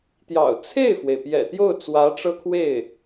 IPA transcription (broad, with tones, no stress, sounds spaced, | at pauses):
t̪ j ɑ̰˨˩ ʊ̯ t͡sʰ e˥˩ ɪ̯ f w e˩ ɪ̯ p j ɛ̰˨˩ t̪ j o˥˩ ʊ̯ t͡s w ä˧˥ ʈ͡ʂ ɤ˥ kʰ w e˥˩ ɪ̯